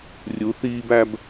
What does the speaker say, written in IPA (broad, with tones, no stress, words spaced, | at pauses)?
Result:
rʲu˨˦θiː˦bæ˦b